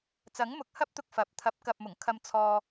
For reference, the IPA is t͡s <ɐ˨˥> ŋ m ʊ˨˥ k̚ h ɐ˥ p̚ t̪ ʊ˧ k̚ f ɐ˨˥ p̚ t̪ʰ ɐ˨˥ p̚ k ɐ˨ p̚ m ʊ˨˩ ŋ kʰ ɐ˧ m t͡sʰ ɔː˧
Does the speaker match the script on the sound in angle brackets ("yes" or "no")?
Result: yes